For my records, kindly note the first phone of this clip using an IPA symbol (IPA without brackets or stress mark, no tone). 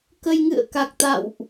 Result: k